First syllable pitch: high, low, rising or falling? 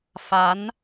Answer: rising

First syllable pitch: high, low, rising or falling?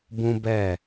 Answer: high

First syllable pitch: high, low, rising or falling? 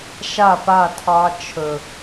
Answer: falling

